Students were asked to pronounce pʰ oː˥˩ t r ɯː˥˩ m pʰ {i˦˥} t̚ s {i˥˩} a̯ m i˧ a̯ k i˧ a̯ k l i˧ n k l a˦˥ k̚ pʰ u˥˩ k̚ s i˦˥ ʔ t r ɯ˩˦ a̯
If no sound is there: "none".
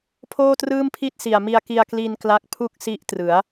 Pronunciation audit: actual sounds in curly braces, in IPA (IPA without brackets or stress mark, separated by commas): i˥˩, i˨˩